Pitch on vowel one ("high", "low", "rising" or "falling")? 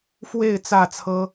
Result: falling